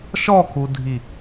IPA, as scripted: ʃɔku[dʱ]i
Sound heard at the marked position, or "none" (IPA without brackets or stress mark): dʱ